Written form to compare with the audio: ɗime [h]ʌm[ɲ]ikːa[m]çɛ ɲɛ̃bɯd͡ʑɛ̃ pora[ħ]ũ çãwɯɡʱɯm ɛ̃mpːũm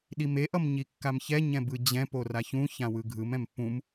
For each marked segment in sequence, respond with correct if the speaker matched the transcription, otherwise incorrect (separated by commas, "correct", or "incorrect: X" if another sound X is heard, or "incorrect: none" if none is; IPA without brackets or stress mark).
incorrect: ʔ, correct, correct, incorrect: ç